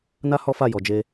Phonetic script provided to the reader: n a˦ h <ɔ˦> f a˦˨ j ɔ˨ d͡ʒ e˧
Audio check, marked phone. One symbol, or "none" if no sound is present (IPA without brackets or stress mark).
ɔ˦